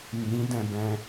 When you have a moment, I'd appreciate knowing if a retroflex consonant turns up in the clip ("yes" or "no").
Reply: no